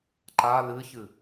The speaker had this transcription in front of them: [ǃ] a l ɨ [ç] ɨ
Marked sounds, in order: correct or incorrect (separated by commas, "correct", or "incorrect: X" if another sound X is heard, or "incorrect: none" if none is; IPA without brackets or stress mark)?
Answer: correct, correct